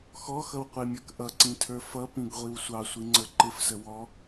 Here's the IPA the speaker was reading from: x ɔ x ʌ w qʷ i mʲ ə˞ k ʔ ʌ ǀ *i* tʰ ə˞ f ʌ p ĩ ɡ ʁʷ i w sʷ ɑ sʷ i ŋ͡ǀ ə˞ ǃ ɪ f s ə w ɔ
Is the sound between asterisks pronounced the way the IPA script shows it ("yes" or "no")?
no